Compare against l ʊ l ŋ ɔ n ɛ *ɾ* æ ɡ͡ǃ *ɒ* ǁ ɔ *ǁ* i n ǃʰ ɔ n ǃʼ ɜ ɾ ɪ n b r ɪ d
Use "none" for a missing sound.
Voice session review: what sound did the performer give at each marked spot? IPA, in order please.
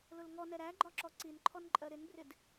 ɾ, ɒ, ǀ

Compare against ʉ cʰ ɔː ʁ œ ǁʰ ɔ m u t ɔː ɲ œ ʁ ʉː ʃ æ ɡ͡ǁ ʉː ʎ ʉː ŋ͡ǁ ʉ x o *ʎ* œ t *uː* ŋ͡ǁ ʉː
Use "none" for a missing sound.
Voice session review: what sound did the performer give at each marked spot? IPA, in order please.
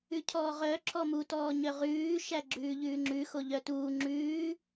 ʎ, uː

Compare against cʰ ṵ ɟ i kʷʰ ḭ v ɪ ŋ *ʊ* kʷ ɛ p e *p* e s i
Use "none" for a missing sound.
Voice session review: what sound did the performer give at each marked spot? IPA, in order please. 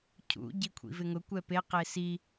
ʊ, q

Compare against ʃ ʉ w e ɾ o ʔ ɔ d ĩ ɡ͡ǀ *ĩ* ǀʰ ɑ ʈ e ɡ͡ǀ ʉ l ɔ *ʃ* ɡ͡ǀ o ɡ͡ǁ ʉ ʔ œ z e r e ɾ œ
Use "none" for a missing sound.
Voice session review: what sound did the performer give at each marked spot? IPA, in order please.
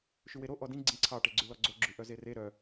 ĩ, none

